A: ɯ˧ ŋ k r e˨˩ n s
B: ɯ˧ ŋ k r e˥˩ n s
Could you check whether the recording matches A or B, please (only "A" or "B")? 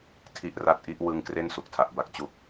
B